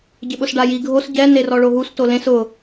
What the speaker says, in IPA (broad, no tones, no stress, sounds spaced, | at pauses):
ɟ ɪ ɓ ʊ s ɖ a j i ɡʱ o s ɟ ɛ n e r ɔ ɭ o ɦ u s t o l ẽ s ʊ